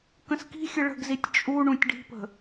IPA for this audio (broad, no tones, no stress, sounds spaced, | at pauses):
k ə̃ s k i̤ xʲ ə ɭ ə̤ ɡ z i tʲ t͡ʃʼ u ɳ ũ tʲ ɖ i̤ p ə̤